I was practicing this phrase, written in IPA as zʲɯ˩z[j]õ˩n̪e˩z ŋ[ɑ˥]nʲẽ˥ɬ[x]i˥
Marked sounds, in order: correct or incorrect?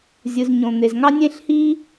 incorrect: ɲ, correct, incorrect: h

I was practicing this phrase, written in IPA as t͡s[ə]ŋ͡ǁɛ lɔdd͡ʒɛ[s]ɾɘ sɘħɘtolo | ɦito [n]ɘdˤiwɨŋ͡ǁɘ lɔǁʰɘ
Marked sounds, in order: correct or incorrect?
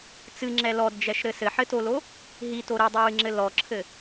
incorrect: ɨ, incorrect: ʃ, incorrect: ɾ

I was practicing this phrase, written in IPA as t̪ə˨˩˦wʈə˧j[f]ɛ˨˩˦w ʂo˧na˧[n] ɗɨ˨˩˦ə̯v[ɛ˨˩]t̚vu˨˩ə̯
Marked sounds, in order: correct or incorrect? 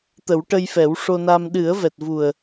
correct, incorrect: m, correct

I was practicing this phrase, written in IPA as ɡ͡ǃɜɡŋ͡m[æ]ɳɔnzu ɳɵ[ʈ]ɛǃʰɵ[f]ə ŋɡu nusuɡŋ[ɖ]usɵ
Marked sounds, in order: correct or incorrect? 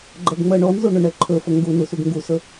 incorrect: ɜ, incorrect: ɳ, correct, incorrect: ɡ

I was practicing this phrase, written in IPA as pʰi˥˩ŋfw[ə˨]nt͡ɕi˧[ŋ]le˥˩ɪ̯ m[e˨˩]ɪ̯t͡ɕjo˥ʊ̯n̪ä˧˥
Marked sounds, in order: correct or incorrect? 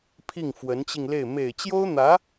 incorrect: ə˧˥, correct, correct

